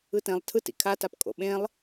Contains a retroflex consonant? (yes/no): no